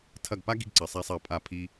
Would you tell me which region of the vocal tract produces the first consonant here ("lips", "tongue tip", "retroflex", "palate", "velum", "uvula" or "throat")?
tongue tip